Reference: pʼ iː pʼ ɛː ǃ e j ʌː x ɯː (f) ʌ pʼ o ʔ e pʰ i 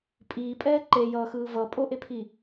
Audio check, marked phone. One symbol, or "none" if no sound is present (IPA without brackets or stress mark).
v